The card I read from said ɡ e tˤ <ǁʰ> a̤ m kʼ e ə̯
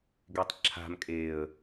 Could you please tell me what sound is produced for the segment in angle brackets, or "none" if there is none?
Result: ǁʰ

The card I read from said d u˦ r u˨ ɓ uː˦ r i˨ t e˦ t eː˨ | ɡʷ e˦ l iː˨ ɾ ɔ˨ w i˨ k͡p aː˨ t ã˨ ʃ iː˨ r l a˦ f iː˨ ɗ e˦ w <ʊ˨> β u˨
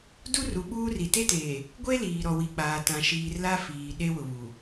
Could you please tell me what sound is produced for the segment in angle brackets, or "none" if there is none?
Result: ʊ˨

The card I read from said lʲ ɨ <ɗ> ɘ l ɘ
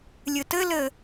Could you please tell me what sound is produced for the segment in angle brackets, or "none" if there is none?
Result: t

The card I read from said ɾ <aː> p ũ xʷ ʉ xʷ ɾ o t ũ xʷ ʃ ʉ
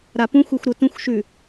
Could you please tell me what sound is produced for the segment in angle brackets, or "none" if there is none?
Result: a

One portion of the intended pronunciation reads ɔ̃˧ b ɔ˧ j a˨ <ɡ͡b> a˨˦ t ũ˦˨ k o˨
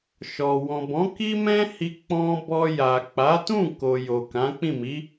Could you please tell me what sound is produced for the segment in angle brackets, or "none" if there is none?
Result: k͡p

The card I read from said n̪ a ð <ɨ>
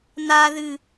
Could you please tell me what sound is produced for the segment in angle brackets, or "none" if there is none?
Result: ɨ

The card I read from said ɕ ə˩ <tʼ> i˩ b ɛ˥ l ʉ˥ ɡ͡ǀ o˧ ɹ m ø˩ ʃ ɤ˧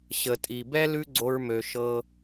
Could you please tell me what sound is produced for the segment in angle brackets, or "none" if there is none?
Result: tʼ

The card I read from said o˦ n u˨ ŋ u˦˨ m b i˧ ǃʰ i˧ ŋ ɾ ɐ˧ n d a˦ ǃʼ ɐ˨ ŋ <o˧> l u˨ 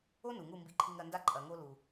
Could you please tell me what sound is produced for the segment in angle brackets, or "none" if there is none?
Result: o˧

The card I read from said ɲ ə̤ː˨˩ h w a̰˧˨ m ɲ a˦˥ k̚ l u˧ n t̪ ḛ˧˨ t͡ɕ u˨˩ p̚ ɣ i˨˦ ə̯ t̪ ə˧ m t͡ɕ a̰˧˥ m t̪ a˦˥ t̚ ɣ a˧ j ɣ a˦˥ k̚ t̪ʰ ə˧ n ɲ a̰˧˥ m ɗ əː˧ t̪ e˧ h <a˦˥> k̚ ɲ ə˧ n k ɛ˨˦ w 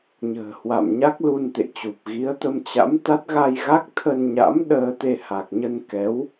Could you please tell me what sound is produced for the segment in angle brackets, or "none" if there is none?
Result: a˨˩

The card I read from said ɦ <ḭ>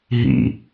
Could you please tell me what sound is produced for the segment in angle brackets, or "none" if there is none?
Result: ḭ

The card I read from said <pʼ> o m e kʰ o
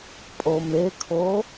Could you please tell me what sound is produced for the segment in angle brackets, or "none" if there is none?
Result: pʼ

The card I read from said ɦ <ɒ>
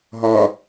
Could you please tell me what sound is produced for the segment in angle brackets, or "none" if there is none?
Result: ɒ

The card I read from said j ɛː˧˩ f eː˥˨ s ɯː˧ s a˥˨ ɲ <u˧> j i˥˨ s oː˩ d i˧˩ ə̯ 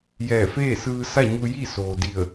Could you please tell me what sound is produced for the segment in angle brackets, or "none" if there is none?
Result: u˧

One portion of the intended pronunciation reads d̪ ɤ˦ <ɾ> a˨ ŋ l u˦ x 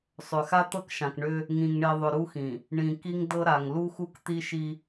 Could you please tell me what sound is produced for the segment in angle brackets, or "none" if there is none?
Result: ɾ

